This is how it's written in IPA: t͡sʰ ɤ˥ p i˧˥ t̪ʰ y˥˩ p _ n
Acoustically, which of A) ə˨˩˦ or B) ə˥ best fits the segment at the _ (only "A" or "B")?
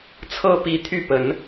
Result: A